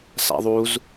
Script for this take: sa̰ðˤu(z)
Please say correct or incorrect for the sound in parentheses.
correct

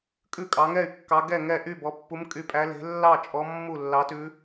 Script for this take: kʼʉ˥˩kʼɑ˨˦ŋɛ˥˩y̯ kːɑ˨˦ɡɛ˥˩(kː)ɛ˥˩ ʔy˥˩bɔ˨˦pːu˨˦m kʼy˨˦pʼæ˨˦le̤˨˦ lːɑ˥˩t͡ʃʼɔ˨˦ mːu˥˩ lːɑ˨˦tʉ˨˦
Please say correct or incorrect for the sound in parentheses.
incorrect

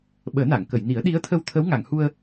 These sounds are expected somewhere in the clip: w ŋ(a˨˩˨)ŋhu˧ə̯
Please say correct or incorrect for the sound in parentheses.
correct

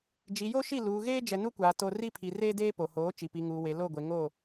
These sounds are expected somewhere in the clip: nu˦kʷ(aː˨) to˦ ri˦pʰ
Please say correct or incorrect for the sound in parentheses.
correct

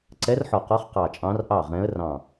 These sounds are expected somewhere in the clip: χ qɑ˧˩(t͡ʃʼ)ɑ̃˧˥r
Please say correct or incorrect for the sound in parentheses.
correct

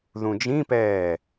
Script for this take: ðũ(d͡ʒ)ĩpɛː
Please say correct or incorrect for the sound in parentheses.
correct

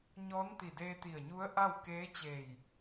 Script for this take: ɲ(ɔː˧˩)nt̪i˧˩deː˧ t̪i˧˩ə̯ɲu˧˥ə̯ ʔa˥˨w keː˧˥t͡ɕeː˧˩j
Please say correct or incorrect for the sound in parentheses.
incorrect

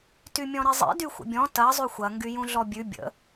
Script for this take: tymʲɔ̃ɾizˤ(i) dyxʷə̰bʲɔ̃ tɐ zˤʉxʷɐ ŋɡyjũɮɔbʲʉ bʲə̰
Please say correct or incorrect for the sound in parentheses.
incorrect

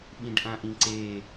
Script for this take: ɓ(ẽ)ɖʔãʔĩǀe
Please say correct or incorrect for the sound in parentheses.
incorrect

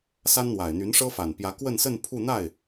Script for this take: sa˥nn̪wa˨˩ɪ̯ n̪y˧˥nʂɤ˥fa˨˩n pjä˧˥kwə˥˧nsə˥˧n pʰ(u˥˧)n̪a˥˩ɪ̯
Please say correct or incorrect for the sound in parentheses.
correct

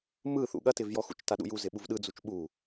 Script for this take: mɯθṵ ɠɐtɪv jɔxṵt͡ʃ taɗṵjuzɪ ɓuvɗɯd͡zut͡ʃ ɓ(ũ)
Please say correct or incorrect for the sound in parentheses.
incorrect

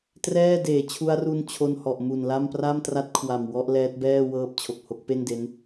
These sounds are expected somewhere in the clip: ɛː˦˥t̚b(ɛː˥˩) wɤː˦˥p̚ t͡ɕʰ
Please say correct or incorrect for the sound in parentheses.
correct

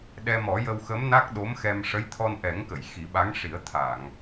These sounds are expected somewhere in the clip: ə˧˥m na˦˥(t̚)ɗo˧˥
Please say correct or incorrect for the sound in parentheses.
incorrect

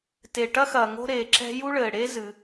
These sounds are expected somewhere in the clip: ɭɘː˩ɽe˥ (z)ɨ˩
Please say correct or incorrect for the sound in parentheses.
correct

